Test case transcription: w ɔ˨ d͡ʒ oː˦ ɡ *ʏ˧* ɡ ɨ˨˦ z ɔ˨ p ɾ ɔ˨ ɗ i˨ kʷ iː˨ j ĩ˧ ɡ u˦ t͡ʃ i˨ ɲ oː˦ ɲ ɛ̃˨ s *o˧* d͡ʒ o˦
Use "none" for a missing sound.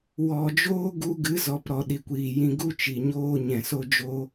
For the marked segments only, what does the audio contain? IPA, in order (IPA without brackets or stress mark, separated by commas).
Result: u˧, o˦